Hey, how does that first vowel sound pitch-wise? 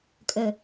low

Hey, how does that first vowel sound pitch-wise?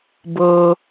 low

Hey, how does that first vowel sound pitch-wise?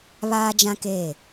high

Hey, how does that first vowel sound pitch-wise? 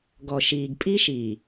low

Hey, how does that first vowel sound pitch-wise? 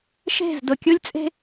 falling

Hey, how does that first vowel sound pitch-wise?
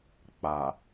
low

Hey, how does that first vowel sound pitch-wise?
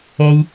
low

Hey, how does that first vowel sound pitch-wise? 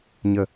low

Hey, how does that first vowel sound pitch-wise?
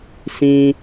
high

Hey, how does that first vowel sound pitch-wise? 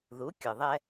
rising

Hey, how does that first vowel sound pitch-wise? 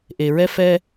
low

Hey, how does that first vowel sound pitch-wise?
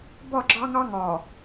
falling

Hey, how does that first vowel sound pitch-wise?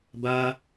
high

